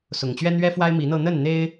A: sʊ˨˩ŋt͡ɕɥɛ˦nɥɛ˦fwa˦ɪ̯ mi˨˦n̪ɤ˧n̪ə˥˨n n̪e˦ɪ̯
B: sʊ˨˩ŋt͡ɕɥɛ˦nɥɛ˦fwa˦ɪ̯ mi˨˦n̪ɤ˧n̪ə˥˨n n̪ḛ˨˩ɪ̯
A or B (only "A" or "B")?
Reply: A